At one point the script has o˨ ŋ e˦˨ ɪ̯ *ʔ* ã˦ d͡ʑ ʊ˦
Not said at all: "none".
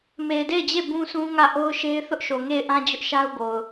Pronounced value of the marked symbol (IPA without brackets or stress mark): ʔ